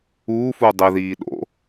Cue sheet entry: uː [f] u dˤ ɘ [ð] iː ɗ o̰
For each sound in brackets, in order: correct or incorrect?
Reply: correct, correct

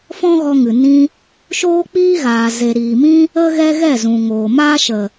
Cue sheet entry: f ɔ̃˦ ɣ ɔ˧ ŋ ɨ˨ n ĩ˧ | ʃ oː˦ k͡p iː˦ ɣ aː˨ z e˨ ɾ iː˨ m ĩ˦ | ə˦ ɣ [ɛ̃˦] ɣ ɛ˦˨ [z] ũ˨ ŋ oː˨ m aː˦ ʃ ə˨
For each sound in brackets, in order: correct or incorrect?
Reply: incorrect: ɛ˦, correct

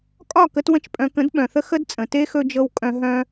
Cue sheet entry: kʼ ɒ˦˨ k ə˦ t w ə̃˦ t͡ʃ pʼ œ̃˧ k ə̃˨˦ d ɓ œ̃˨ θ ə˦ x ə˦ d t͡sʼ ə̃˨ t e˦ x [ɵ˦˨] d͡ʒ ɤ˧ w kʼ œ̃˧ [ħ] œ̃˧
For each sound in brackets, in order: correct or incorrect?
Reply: incorrect: ɵ˧, incorrect: ɦ

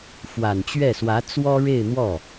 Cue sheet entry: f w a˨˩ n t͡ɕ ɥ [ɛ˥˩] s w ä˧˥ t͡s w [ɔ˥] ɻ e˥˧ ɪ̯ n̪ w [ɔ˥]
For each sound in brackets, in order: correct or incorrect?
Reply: correct, correct, incorrect: ɔ˥˩

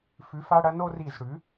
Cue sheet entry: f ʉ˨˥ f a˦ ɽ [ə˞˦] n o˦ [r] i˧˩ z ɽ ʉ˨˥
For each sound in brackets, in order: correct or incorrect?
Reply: incorrect: ɐ˦, correct

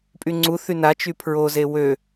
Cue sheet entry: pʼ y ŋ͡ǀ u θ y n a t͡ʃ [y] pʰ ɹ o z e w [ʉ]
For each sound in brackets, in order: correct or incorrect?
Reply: correct, incorrect: ø

